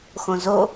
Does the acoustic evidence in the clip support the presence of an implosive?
no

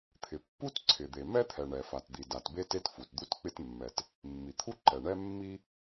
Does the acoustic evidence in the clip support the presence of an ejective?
no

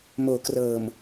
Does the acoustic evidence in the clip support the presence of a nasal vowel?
no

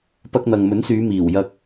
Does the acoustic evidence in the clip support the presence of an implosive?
no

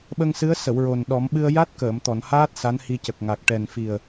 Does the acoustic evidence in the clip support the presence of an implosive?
yes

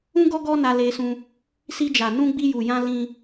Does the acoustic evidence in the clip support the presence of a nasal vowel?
yes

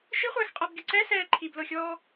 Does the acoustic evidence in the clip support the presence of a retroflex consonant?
no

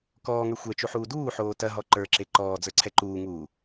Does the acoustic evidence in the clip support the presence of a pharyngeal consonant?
yes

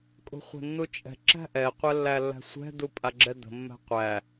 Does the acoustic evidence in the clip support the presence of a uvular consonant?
yes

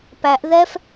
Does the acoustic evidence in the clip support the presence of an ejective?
no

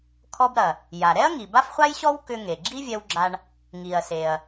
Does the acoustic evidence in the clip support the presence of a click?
yes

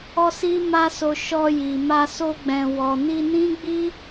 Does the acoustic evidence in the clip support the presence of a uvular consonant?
no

